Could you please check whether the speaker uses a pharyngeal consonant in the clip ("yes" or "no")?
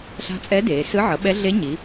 yes